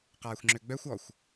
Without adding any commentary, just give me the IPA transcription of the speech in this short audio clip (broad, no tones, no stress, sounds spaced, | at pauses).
q aː xʷ ŋ͡ǁ ø ɡ͡b œ xʷ ɔ xʷ